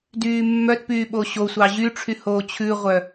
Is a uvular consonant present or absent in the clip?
present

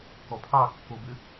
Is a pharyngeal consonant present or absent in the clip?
absent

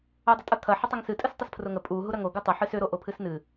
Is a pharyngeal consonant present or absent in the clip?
present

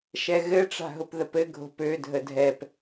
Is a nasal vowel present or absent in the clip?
absent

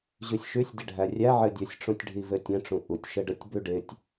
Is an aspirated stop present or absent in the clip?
absent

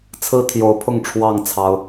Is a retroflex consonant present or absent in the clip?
present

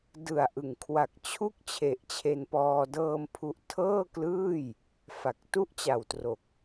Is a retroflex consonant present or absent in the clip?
absent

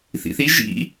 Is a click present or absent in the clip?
absent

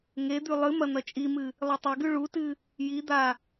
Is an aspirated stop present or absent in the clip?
absent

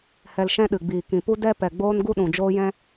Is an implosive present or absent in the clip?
present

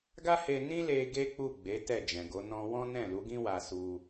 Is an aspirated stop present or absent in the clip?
absent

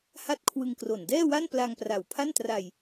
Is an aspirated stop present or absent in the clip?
present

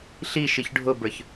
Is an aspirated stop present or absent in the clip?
absent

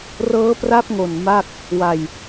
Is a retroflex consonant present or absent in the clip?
absent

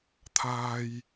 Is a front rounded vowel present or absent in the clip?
absent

